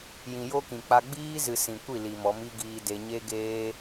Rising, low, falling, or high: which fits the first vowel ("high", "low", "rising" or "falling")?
low